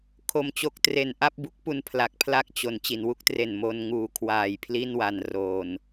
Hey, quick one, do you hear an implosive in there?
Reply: no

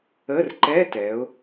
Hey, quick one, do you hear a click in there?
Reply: yes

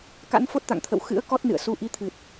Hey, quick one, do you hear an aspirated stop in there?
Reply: yes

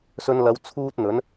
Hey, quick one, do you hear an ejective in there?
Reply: no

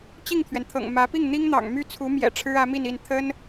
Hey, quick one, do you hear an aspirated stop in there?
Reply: yes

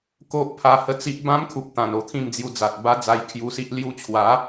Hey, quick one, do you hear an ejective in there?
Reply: no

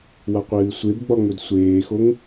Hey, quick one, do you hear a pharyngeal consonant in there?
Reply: no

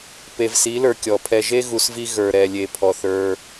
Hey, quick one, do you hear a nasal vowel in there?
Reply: no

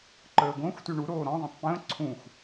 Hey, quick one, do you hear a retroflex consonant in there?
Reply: yes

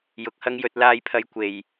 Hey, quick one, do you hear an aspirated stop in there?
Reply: yes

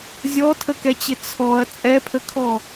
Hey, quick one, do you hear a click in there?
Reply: no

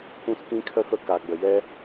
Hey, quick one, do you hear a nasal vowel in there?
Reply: yes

